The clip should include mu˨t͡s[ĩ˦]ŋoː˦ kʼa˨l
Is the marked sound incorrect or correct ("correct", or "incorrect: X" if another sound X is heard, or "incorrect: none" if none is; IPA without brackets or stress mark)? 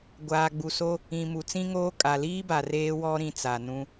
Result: correct